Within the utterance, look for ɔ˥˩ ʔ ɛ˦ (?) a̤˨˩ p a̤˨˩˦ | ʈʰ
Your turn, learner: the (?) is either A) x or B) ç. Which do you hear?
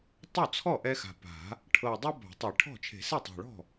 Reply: A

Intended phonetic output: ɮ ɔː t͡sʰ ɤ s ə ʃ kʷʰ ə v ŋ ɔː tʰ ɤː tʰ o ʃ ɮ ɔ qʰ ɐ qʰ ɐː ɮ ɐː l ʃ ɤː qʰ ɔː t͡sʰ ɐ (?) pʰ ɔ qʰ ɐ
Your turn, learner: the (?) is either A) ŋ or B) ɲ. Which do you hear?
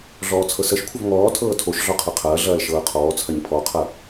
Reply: B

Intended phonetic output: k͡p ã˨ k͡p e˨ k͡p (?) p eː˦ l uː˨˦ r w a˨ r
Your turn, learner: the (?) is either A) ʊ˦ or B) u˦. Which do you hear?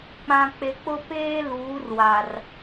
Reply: A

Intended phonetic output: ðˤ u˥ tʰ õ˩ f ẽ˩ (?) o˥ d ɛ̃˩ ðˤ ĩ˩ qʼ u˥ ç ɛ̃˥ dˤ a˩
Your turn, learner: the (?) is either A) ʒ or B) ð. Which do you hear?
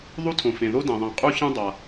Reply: B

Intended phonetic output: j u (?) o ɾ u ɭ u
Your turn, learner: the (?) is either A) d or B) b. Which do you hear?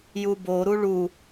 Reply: B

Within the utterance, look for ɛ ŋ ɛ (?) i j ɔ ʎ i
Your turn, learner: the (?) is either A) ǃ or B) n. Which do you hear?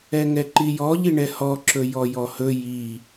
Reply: A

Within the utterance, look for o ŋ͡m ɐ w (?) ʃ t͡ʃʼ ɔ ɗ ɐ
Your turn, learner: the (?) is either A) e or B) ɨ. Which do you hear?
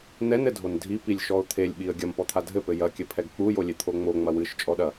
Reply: B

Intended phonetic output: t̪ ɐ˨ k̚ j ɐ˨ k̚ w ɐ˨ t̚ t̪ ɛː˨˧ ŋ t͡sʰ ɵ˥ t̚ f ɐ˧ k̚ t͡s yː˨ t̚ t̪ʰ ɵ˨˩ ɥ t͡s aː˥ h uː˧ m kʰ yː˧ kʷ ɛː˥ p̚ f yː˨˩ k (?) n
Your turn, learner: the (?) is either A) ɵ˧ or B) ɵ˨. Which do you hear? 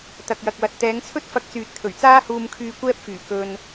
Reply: A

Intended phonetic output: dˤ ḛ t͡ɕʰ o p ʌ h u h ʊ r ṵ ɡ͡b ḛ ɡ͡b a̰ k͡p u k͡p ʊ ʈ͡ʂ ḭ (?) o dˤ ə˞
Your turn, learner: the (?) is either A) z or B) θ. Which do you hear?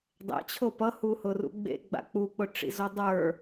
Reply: A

